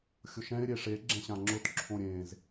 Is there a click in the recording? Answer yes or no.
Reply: yes